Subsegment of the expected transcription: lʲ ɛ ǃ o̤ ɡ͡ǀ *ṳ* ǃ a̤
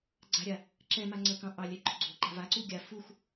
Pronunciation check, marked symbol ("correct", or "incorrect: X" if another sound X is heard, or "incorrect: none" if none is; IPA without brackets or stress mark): incorrect: o̤